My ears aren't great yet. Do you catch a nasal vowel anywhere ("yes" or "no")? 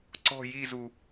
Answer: no